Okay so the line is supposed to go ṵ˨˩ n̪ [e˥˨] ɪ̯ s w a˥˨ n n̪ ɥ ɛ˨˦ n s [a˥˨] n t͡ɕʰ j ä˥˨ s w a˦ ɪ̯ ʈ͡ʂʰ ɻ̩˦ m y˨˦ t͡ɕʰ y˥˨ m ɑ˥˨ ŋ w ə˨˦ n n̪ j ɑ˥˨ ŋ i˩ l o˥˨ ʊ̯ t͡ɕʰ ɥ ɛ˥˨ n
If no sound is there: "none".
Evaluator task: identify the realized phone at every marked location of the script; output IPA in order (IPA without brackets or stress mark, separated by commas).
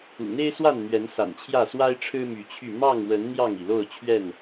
e˦, a̰˨˩